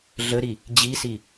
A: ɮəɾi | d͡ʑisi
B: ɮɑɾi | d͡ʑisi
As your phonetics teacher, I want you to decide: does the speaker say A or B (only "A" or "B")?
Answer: A